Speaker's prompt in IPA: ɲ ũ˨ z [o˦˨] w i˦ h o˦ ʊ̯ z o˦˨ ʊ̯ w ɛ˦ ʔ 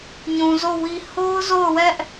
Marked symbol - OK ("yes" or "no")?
yes